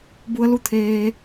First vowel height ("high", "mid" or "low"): high